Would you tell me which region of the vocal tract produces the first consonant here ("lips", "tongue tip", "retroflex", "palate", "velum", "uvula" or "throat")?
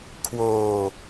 velum